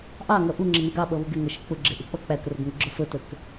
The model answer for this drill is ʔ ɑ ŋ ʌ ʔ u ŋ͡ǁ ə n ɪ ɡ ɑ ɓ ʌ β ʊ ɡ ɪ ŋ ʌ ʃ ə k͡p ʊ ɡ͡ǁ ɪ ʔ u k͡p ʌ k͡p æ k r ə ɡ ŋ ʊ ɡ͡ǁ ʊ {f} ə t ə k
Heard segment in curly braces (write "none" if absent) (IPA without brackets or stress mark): f